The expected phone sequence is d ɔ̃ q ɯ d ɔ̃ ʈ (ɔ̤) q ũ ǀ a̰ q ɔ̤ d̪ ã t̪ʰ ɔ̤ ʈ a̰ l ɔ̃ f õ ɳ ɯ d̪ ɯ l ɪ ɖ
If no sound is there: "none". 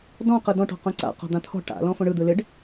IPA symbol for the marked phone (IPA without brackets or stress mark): ɔ̤